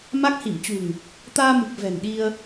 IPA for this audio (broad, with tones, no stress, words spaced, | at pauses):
ma˦˥k̚hi˧˩mt͡ɕṳ˨˩ŋ | t̪aː˧mɨ˨˩k̚ vɛ̤˨˩nɗi˧ə̯